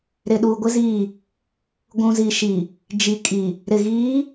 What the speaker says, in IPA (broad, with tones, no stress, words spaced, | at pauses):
ɾɪ˨ɗu˨ɡʷɪ˦ zi˦˨ | ɡʷũ˨zi˨ʃi˨ | d͡ʒi˨ kʼi˨ | ɾɪ˨ɣiː˨˦